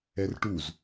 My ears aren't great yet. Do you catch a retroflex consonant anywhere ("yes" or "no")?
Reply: yes